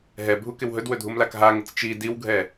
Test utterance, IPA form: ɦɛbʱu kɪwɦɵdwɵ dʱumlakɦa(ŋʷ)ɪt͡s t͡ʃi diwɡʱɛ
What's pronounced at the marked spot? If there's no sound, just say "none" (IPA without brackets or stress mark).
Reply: ŋ